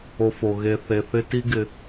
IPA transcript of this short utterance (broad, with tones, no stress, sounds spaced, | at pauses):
o˨ f o˩ ɣ e˨ θ e˨ θ ɪ˦ t i˦ ɡ ɪ˨